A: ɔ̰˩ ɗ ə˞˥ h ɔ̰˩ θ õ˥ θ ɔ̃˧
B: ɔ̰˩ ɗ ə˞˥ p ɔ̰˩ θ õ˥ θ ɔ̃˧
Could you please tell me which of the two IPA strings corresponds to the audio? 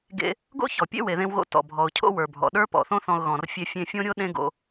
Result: B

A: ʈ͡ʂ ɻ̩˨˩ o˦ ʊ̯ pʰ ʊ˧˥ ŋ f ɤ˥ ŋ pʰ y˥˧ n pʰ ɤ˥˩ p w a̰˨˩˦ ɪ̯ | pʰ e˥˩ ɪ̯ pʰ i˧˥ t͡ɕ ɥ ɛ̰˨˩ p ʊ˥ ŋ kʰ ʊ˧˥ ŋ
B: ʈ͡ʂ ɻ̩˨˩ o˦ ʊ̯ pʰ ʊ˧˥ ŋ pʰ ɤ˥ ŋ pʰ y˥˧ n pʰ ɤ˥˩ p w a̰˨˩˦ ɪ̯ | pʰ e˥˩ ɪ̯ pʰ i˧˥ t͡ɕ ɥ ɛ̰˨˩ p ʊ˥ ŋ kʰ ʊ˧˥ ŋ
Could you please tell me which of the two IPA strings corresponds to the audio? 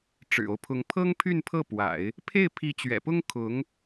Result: B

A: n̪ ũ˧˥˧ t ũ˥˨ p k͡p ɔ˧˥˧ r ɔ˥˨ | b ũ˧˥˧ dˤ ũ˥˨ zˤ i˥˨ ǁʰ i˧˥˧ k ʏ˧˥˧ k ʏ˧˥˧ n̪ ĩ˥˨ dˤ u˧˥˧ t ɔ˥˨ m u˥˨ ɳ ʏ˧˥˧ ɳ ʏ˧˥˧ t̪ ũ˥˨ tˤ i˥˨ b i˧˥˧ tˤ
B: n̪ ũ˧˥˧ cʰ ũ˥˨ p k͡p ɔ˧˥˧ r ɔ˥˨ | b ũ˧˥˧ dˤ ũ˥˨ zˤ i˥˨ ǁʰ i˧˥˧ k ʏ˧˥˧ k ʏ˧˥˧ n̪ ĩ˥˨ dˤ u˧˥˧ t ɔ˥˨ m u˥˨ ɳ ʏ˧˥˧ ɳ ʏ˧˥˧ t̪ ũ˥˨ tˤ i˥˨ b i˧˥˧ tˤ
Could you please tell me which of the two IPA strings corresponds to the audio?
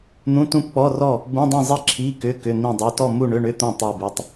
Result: A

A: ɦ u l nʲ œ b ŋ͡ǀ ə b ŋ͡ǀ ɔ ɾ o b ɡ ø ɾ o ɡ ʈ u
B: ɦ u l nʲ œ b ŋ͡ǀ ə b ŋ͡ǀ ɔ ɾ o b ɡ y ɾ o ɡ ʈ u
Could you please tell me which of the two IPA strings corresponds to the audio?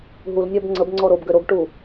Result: A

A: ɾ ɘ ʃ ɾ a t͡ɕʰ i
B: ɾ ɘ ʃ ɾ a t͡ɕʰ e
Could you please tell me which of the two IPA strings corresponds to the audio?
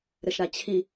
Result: A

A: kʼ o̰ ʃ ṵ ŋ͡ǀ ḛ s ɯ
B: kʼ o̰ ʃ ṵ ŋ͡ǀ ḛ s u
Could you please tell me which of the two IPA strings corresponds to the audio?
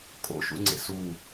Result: B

